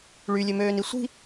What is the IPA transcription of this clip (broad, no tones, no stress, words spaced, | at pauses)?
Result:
ɭylʲømøːni sʷi̤